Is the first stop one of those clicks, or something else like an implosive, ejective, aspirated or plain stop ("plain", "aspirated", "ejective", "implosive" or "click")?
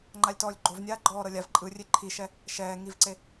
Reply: click